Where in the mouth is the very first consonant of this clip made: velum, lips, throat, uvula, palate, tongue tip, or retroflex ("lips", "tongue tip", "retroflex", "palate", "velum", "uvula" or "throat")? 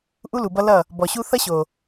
throat